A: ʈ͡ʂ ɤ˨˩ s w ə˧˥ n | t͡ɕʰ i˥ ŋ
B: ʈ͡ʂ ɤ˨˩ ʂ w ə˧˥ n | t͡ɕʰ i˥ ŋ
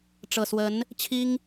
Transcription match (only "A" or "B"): A